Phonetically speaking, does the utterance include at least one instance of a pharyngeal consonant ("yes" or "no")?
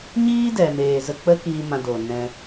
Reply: no